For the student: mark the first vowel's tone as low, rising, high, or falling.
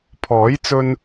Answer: rising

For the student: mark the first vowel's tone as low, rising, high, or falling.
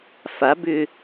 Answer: rising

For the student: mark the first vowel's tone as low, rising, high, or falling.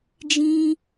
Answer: high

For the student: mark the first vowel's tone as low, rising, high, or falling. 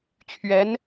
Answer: rising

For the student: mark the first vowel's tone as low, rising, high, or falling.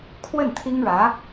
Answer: falling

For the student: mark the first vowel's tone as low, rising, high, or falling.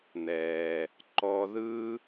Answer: low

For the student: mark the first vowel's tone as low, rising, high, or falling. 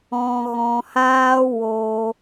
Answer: low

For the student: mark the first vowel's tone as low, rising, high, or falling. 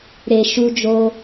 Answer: low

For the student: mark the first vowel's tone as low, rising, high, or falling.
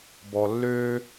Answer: low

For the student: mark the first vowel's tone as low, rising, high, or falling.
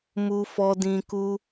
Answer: low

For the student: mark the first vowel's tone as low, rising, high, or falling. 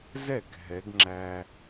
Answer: falling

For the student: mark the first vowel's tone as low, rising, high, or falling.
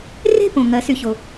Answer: falling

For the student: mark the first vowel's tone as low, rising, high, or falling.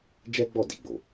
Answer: high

